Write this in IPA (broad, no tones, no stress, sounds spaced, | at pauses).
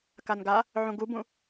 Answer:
k a n ɡ a | ʕ ũ ɡ u b ũ